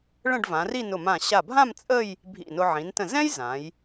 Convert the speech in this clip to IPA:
ɭə̃˥˧ɖvã˩˧ri˥˧ nʊ˧˩mã˧˩ ɕa˧˩bʱã˥˧m t͡sʼə˥˧j | bʱḭ˧˩nʊ˧ ʕĩ˩˧ntə̃˧˩ zɛ̃˥j zã˩˧j

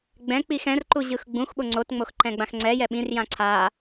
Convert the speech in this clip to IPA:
ɡ͡bɛ̃k͡pix ɛ̃rǃuʑɯx ɡ͡bũxɓo ŋ͡ǀotŋ͡moxǃɛ̃ɡ͡bãx ŋ͡ǀɛjɛ ɓĩrjã ǀʰa

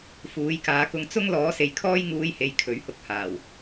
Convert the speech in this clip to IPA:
fuː˨˥jkaː˨˥kʊ˧ŋ t͡sʊ˥ŋ lɔː˨˥se˨jkʰɔː˥j ŋuː˧jhe˨j kʰɵ˨˥ɥhʊ˧k̚haː˨˩w

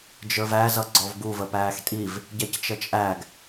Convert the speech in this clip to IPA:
d͡ʒə˞væ zʌɡ͡ǀɔvɡu vəpæːxtʼiv | ɟɛct͡ʃət͡ʃʼæɡ

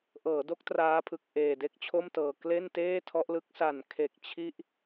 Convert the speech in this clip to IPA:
ʔɤː˩˦do˦˥k̚ traː˦˥pʰɯ˨˩k̚ ʔeː˨˩de˥˩k̚t͡ɕʰo˥˩mtɤː˨˩ kle˥˩nteː˥˩tʰɔ˦˥ʔlɯ˦˥k̚ sa˨˩nkʰe˨˩k̚ t͡ɕʰi˥˩ʔ

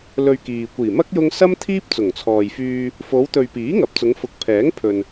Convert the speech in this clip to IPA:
lɵ˧ɥkiː˨ kʷiː˨˩mɐ˥k̚ jʊ˥ŋ sɐ˥m t̪ʰiː˥p̚t͡sʊ˨˩ŋt͡sʰɔː˨jfyː˧ | fo˨˧wt̪ɵ˨ɥpiː˨˥ ŋɐ˨˥p̚t͡sʊ˨˧ŋfʊ˨˥k̚ pʰɛː˨˥ŋ pʰɵ˨n

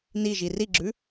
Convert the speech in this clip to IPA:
niʒi riɡ͡ǁʉ

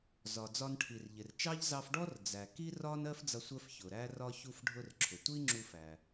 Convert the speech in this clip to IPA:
zɒ˩d͡zɒ˧nʈʰi˩r ʎɪ˩rt͡ʃɑ˥ʎ zɑ˧fɖɔ˥r d͡zæ˩ ki˥rɒ˥n ɜ˥fd͡zʌ˧ sʷɜ˧fçʊ˩ ɾæ˥rɒ˥ çu˧fɖʱʊ˧rǁʰʊ˩ tʷi˥ŋ͡ǁu˧fæ˩

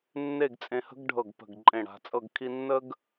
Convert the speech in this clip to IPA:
nːe˥˧ɡt͡sʼẽ˧hə̤˥ɡ ɖʱɤ˧˩ɡpə̤˧˩ɡ ǃʼẽ˧˩ɽa̤˩˧t͡sʼɤ˥˧ɡ kʰi˧nːə˥ɡ

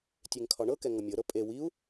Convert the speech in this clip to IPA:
tʲeŋkʰɒɳɤkɛ ŋɤmʲɤɾɤ pʼe wiu̯

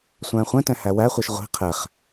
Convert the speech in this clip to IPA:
sʷæ̃ːχʷɛ̃tɛ̃ hæwæχʷiʃ ʁʷi̤ qʰɛχ

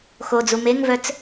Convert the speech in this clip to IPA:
xod͡zu meŋvœt͡s

